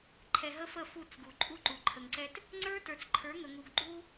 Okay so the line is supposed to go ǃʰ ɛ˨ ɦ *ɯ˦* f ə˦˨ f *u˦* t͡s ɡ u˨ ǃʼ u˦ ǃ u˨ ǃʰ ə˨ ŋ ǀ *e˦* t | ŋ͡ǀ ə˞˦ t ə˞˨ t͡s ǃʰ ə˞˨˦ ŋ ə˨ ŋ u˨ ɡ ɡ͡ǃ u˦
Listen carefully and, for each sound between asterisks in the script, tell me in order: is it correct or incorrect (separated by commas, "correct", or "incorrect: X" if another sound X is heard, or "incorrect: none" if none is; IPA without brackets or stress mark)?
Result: incorrect: ə˦, incorrect: u˦˨, incorrect: ɛ˦